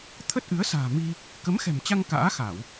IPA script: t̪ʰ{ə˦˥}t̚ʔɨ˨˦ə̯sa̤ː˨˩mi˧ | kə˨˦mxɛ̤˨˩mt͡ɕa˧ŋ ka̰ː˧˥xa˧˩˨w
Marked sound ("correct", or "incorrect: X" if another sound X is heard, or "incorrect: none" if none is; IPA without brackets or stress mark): correct